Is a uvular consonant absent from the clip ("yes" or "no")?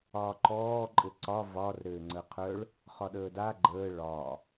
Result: no